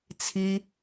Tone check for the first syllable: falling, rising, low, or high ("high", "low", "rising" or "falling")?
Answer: high